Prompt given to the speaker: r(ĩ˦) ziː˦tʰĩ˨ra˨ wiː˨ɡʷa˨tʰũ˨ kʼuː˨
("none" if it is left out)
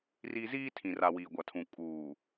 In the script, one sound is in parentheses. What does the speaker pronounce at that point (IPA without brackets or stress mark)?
i˦